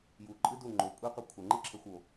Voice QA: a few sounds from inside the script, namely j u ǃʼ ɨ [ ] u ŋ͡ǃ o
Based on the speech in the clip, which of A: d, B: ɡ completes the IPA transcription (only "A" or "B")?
A